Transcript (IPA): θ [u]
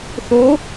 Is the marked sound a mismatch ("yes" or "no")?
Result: yes